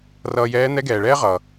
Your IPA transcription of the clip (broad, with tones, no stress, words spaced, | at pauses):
rʌː˧jɛː˧˥ n̪ɛ˧˥ɡɛː˩ɭɛː˥ ʁʌ˩